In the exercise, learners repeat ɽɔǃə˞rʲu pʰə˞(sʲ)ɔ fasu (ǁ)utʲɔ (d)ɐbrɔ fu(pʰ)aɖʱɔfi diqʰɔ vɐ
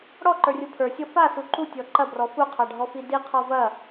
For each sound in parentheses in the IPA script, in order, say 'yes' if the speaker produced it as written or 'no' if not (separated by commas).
yes, no, no, no